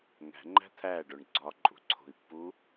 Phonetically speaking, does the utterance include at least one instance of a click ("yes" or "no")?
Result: yes